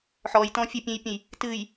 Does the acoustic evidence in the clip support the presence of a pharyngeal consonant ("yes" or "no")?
yes